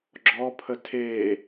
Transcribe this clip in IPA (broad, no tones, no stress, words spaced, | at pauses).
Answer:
ɡ͡ǁɔpʰə tʰe